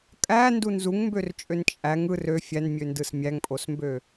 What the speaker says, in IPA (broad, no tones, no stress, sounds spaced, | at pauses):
kʼ æ n d u n z u ŋ m b ø r t͡ʃʼ ø n t͡ʃʼ æ ŋ ɯ r ø fʲ æ n mʲ ø n d ɯ s mʲ æ ŋ pʼ o s m b ø